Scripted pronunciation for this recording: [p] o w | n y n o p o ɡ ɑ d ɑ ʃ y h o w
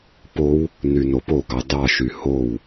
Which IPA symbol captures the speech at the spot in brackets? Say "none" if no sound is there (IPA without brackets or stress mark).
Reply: p